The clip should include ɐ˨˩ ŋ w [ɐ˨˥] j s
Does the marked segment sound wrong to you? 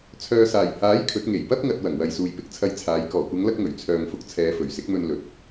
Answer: yes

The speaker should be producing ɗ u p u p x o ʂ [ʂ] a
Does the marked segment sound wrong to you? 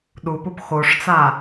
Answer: yes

